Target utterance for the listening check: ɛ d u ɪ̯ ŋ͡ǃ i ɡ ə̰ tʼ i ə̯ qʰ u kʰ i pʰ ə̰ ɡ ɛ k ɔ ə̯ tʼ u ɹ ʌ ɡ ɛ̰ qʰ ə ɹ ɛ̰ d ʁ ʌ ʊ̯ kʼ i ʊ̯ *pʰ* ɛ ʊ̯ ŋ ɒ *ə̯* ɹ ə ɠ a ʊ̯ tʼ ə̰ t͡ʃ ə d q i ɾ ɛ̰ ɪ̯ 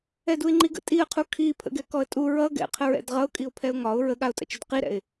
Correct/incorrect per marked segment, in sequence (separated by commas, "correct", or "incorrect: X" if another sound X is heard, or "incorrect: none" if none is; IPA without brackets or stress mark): correct, incorrect: ʊ̯